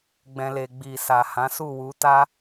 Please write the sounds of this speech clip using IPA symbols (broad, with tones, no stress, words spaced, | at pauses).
ɡ͡bɛ̃˨le˨ ɡ͡bi˨sa˨ hã˨˦su˦˨wu˨˦ta˦